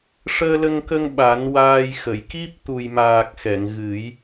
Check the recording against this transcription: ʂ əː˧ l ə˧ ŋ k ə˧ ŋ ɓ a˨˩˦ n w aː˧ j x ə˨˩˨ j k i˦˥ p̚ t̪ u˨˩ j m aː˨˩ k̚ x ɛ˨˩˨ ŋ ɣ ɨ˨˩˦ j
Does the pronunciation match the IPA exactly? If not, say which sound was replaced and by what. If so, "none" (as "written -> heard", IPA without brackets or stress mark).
none